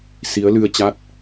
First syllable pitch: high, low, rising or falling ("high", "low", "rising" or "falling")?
rising